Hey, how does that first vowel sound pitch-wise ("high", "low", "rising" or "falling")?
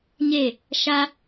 falling